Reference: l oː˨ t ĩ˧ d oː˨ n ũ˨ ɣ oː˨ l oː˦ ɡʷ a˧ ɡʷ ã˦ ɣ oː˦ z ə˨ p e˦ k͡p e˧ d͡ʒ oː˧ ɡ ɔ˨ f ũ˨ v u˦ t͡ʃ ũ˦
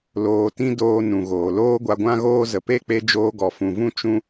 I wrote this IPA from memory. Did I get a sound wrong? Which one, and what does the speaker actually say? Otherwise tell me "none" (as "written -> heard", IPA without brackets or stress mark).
u˦ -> ũ˦